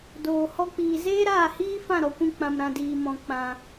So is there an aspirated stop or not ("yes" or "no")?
no